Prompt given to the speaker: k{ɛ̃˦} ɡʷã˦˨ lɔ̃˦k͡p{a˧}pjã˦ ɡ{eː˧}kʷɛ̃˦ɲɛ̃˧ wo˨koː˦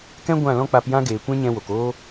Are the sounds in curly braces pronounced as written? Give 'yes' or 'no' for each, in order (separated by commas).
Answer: yes, yes, no